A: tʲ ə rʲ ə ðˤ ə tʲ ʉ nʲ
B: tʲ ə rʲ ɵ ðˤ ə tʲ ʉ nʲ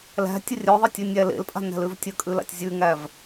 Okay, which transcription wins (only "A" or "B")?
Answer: B